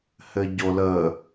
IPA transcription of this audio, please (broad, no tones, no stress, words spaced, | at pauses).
hɘɟolə